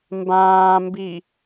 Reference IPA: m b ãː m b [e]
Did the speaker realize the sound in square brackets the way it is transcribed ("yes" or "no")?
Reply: no